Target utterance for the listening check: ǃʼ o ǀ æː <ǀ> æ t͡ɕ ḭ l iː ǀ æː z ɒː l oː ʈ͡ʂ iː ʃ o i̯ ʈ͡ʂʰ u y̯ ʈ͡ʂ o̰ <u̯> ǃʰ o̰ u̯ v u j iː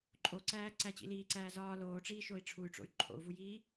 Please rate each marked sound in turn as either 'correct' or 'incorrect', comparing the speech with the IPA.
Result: correct, incorrect: y̯

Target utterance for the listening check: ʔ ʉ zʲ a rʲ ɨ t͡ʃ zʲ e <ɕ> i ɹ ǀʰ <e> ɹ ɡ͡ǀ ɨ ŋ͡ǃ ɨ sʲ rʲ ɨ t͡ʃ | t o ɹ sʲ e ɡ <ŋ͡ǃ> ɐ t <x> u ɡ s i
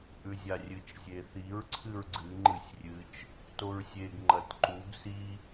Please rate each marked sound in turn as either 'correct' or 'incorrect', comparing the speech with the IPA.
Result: incorrect: θ, incorrect: ɨ, correct, incorrect: ǃ

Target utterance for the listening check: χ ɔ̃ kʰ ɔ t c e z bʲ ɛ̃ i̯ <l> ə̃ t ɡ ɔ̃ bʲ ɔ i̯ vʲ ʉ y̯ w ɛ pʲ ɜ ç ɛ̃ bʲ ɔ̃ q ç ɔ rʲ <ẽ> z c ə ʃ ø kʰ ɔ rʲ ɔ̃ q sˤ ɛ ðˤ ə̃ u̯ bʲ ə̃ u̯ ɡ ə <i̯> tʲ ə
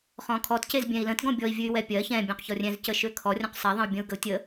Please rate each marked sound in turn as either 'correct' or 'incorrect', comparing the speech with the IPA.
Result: correct, incorrect: ɛ̃, incorrect: u̯

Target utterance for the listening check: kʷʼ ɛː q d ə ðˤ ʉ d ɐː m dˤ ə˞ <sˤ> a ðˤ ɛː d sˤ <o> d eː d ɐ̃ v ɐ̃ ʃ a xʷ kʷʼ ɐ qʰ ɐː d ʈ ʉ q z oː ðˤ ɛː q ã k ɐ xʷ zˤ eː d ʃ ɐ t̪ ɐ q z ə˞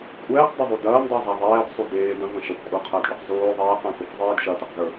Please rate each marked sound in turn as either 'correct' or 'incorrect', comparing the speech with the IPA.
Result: incorrect: zˤ, incorrect: u

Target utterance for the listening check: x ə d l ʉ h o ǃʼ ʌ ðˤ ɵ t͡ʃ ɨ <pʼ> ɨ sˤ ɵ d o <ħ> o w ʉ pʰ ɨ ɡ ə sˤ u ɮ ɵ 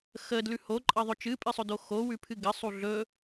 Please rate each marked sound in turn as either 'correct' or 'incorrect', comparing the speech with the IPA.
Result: correct, incorrect: x

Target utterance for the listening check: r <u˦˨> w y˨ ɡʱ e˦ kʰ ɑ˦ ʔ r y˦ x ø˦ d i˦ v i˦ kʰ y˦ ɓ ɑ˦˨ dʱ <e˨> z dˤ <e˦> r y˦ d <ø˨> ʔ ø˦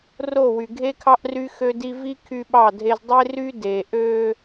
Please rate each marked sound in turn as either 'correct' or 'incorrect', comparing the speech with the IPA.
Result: incorrect: o˦˨, incorrect: e˦, correct, incorrect: e˨

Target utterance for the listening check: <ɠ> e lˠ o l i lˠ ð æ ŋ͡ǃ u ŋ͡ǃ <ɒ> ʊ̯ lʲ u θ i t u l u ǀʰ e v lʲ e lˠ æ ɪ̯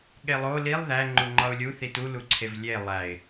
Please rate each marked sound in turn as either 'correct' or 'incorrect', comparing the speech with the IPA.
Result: correct, correct

